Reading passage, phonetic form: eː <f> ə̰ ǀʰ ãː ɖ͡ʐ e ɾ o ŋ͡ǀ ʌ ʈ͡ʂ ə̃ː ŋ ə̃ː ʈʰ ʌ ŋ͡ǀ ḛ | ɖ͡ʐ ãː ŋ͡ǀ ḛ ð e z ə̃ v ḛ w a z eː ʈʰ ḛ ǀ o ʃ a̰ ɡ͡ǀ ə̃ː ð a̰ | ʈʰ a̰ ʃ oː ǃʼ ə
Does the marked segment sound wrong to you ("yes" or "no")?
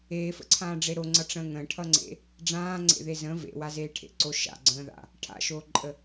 no